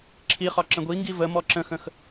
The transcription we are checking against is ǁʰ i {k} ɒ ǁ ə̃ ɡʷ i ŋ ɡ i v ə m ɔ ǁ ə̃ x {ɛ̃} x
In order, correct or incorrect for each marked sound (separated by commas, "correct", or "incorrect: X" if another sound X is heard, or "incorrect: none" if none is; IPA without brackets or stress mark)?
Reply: incorrect: χ, incorrect: ə̃